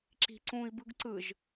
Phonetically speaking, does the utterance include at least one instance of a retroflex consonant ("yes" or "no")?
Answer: no